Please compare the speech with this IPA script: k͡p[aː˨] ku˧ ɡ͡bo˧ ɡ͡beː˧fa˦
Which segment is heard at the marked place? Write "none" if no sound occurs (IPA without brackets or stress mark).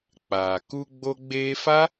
aː˨